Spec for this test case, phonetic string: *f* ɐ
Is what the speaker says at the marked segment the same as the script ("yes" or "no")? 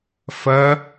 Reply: yes